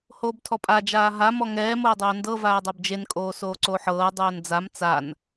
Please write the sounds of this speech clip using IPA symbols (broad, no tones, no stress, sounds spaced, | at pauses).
h oː b tʰ ɔ pʼ a d͡ʒ aː ɦ a m ɔ ŋ ɛː m oː dˤ oː n d ɤ v aː dˤ a b d͡ʒ e n kʼ oː s oː ǀ o ħ ɤː dˤ oː n d͡z a m t͡s a n